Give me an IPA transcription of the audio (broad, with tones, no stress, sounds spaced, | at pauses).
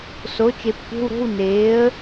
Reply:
s o˩˥ t͡ʃ e˨˩˦ p tʷ e̤˧˥˧ w ɾ o̤˧˥˧ w n eː˩˥ ə̯